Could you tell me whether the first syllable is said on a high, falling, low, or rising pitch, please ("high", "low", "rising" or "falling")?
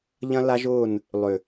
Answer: high